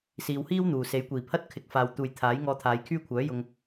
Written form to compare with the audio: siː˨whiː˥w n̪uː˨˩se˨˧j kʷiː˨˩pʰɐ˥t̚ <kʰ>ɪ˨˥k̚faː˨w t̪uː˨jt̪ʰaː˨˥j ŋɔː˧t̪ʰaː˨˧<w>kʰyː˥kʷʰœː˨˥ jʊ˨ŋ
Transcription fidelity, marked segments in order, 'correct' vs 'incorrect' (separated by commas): correct, incorrect